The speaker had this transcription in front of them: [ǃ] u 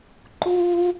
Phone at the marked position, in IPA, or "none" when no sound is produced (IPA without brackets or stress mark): ǃ